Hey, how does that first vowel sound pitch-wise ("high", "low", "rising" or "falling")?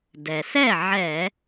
low